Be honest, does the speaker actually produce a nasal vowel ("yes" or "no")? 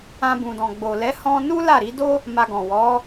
yes